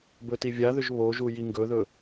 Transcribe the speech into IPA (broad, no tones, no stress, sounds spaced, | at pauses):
b ɵ t i vʲ a ð ʏ ʒ β o ʒ u j i ŋ ɡ ɵ ð ɵ